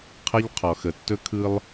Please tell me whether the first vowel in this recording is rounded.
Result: no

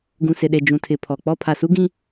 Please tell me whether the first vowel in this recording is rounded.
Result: yes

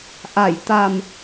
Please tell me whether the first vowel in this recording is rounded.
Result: no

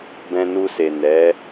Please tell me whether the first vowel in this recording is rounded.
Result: no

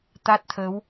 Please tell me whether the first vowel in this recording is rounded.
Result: no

